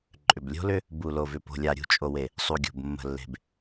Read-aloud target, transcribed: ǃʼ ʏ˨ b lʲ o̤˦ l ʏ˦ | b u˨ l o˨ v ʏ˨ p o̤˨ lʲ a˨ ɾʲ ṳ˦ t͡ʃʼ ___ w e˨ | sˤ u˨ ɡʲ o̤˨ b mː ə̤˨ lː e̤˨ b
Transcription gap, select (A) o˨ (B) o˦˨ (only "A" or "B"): A